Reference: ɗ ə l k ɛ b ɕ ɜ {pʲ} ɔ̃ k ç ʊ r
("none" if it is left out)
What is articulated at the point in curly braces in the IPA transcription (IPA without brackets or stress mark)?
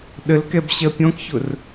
pʲ